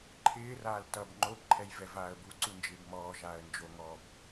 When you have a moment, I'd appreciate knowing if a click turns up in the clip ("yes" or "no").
yes